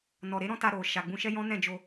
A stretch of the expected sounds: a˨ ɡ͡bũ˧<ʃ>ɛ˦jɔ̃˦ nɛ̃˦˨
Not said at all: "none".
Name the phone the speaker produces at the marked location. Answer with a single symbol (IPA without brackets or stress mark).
ʃ